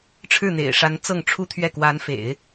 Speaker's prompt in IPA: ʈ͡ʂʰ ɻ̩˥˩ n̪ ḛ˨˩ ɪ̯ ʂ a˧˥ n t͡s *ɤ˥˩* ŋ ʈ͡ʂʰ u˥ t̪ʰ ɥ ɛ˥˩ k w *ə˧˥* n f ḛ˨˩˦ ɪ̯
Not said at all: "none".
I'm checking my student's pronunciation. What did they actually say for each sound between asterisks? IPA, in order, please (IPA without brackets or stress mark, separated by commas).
ɤ˥˩, a˧˥